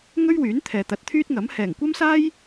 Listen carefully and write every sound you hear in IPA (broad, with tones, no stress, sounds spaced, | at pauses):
ŋ ɵ˥ ɥ w yː˨˥ n t̪ʰ ɛː˨ t̪ ɐ˨˥ t̚ t̪ʰ yː˥ t̚ ŋ ɐ˨˥ m h ɛː˨˩ ŋ kʷ ɐ˥ m s aː˥ j